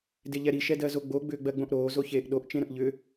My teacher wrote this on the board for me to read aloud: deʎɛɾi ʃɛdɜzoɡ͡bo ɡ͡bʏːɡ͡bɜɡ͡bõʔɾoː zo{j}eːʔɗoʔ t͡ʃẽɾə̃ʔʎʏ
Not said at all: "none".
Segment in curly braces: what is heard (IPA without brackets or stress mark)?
ç